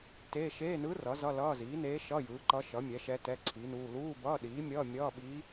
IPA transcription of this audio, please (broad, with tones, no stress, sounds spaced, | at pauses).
t eː˧˥˧ ʃ eː˧˥˧ n ɯ˧˥ r ʌ˩˥ z ʌ˧˥˧ l ʌː˧˥˧ z iː˩˥ n eː˧˥ ʃ ʌ˧˥˧ j ɯː˩˥ ǃ ʌ˧˥ ʃ ʌ˩˥ mʲ ɛ˩˥ ʃ ɛ˧˥ t ɛ˧˥˧ ǀʰ i˩˥ n uː˧˥˧ l uː˧˥˧ b ʌː˧˥˧ ɗ iː˩˥ mʲ ʌː˧˥˧ mʲ ʌː˧˥˧ ɓ iː˧˥